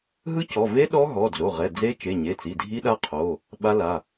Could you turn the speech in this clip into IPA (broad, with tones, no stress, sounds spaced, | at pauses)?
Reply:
ɦ ɯ˦˥ c ɔ˩˧˩ v e˦˥ ɗ ɔ˦˥ ɦ ɔ˩˧˩ d͡z o˩˧˩ ʁ ɛ˩˧˩ d͡z e˦˥ t͡ʃ e˩˧˩ ɲ e˩˧˩ t͡s i˩˧˩ dʱ i˦˥ ɗ a˦˥ qʰ o˩˧˩ | ɓ a˦˥ l a˩˧˩